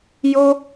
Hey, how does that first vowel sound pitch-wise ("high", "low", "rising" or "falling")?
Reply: high